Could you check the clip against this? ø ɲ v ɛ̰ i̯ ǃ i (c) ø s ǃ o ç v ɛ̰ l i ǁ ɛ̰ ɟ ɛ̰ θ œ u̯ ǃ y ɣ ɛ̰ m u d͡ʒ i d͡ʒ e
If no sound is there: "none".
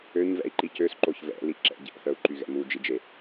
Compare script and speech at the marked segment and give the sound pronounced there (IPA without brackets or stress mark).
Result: c